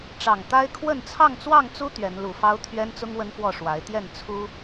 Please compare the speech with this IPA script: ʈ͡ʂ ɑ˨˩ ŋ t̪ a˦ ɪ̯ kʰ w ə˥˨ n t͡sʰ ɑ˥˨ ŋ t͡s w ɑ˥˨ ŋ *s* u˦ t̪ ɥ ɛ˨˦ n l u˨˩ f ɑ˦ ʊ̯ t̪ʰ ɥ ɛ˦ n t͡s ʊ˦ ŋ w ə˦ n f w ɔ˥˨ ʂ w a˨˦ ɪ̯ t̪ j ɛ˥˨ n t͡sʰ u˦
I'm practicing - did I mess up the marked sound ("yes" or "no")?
yes